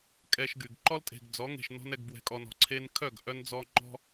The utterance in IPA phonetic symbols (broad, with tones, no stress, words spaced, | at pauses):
kʼɛ˧ʃɡy˨ɡ ǃɔ˦ltʼe̤˨ɡd͡zɔ˨˦ŋe̤˨ʃ nɔ̤˦nɛ˧ɡbwɛ̤˧kʼɔ˧n ɔ̤˨ǀʰe˧nkʰœ˦˨ɡ ʔœ˦nd͡zɔ˦ ŋ͡ǃɔ̤˦